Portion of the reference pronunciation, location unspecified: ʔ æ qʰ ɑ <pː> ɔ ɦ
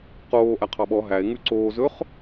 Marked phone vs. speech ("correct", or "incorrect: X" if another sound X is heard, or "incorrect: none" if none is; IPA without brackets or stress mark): incorrect: ɓ